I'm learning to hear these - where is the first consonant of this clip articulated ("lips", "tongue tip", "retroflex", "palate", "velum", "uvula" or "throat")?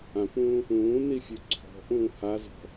lips